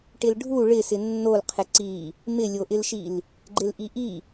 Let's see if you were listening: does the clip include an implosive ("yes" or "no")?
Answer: no